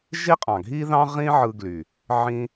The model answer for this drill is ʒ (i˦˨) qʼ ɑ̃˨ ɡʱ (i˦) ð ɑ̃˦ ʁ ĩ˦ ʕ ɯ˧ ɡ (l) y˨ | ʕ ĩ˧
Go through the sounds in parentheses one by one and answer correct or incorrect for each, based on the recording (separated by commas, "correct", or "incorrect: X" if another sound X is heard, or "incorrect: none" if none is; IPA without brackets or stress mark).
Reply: incorrect: i˦, correct, correct